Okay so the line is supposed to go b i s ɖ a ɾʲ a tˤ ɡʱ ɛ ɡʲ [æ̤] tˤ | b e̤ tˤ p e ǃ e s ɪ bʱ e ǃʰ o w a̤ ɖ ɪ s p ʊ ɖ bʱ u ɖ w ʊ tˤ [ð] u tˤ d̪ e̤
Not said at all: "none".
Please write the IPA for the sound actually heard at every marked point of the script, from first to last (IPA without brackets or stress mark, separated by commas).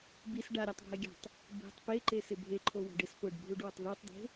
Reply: a̤, ð